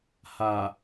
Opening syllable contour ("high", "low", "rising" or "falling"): low